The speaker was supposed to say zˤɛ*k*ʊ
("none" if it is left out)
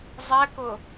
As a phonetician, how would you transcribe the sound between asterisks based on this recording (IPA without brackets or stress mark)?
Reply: k